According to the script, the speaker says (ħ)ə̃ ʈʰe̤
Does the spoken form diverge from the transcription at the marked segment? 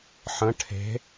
no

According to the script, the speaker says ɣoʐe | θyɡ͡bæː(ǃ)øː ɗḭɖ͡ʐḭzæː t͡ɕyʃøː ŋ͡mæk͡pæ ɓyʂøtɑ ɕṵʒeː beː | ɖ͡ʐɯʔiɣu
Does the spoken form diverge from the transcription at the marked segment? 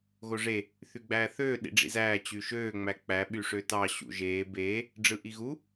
yes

